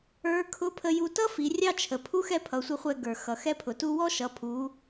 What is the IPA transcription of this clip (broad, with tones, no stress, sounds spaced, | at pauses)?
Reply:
ə˞˧˥ kʰ ʊ˧˥ pʰ ə˧ j u˧ t ʌ˥ f i˩˧ rʲ ɑ˥ t͡ʃʰ ə˩ pʰ u˧˥ x ɛ˧ pʰ ʌ˩˧ sʷ ə˧ χʷ ɛ˧ ɡ ə˞˩ x ʌ˩ x ɛ˧ pʰ ʊ˩ t u˧ w ɔ˥ ʃ ʌ˩˧ pʰ u˩˧